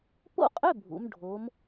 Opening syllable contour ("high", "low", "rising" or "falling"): falling